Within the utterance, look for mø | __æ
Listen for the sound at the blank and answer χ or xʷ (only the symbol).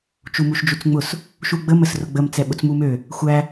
xʷ